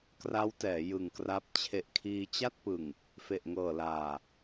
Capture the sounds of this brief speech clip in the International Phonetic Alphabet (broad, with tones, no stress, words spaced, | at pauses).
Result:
kra˦˥wtɛː˩˦ jɯ˨˩ŋkra˦˥p̚ t͡ɕʰe˨˩ʔkʰiː˧t͡ɕa˥˩t̚pɯ˨˩ŋ | fe˨˩ʔŋɤː˨˩laː˨˩